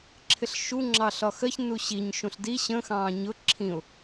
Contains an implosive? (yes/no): no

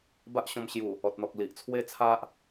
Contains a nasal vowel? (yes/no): yes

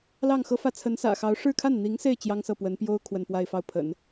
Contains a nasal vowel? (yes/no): no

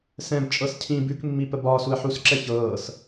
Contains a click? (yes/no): yes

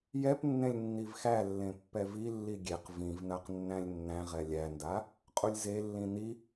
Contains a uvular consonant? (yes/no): yes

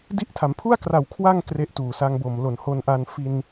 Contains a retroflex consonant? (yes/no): no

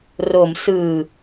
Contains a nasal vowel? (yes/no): no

